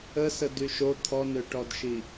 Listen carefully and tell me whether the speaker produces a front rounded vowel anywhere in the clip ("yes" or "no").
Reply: yes